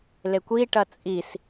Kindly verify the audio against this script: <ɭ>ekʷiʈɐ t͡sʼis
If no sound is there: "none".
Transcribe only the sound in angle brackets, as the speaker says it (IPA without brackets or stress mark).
l